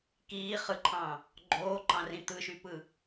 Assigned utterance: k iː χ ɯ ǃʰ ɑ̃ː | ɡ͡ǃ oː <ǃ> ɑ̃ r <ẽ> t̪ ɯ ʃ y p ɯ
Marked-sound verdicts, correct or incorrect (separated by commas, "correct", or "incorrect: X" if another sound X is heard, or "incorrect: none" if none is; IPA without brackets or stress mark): correct, incorrect: ĩ